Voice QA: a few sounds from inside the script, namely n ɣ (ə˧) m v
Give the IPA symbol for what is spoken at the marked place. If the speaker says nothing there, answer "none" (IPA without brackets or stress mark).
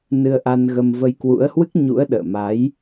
ə˧